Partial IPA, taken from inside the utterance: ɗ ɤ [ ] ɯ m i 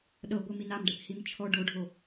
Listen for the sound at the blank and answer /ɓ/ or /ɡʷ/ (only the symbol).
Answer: ɡʷ